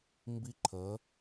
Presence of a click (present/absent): present